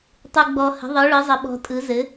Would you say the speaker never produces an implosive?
no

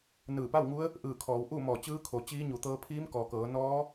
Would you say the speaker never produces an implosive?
yes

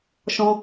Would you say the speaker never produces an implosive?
yes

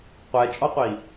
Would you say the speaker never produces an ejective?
no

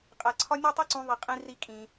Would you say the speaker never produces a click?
no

